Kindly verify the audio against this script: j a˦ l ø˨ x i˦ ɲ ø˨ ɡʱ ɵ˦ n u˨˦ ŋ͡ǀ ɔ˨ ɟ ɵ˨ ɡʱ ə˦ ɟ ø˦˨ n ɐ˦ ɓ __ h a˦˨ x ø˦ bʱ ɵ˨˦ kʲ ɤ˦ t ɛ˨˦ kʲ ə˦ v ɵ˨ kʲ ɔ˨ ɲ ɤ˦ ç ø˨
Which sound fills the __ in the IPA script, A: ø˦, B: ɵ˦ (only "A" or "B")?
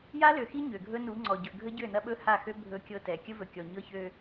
B